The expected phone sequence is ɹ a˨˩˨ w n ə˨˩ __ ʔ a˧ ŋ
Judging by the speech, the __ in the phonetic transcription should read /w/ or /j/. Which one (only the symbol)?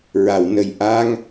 j